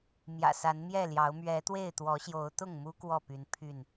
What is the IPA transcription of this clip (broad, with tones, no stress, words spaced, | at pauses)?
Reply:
mjä̰˨˩sa˨˦nmjɛ˥˨ljɑ˨˦ʊ̯ mɥɛ˨˦ t̪we˥˨ɪ̯t̪wɔ˨˦ɕjo˨˦ʊ̯ t̪ʊ˥˨ŋmu˦ kwɔ˥˨py˨˦n pʰy˥˨n